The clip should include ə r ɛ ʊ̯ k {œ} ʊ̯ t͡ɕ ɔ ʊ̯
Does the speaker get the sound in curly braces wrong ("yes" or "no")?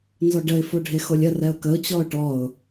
yes